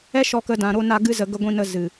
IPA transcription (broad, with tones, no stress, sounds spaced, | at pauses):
ɛ˦ ʃ ɔ˧ k ə˧ d ã˧ ɾ o˦ n a˦ ɡ ɨ˦ z ə˧ ɡ ə˧ ɡʷ ĩ˧ n ə˧ z ɨ˨